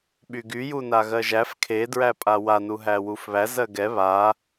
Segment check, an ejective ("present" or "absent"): present